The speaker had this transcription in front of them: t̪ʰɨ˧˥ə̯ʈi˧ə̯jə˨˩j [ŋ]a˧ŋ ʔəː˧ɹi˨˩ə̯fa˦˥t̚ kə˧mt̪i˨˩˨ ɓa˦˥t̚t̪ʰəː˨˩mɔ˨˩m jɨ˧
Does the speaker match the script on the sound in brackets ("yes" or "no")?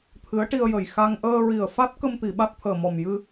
no